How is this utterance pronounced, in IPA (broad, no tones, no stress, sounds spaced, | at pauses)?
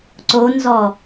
ǀ o n z ɔ